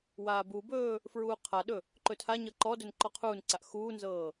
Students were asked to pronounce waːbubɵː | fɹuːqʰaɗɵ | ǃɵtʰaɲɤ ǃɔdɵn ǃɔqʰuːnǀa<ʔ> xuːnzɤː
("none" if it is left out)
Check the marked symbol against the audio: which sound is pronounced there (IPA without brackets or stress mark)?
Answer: ʔ